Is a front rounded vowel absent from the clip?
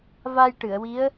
yes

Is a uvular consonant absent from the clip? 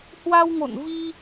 yes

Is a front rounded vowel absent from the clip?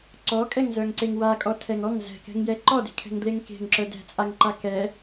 no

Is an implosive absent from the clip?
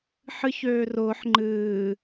yes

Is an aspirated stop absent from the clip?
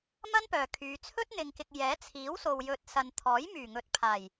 no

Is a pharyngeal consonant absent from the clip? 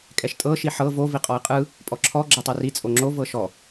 no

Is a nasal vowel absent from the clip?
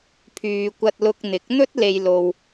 yes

